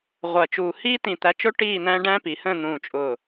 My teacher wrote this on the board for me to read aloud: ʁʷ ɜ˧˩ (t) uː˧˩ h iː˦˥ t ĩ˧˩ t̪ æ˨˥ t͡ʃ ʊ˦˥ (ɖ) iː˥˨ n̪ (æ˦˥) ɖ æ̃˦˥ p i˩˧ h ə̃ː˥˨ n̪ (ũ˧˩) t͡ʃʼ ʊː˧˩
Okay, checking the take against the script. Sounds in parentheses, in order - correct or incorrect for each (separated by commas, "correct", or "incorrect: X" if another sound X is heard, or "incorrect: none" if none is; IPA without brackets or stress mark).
incorrect: t͡ʃ, incorrect: ʈ, incorrect: æ̃˦˥, incorrect: ũː˧˩